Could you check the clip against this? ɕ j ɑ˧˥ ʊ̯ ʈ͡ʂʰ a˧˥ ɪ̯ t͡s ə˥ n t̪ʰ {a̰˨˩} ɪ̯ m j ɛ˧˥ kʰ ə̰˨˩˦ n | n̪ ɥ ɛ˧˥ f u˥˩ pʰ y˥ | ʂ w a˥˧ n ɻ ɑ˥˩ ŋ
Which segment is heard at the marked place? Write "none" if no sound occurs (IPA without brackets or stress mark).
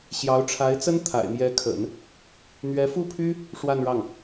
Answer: a̰˨˩